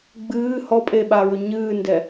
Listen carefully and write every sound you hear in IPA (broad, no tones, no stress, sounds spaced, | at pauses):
ɡ͡b ɨː h ɔ pʼ e ɓ a ɹ ɵ ɲ ɨː n d ɛ